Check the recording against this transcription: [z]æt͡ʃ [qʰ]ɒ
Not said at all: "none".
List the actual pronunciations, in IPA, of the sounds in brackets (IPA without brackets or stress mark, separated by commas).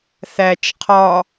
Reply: θ, qʰ